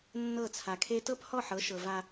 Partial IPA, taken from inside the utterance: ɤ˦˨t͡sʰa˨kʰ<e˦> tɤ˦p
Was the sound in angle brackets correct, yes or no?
yes